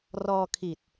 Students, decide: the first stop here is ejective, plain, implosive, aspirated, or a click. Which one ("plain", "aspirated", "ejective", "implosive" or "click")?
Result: aspirated